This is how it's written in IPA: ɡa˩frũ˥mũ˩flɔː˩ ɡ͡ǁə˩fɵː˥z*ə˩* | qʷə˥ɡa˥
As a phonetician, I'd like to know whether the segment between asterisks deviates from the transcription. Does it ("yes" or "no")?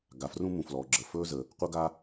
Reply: no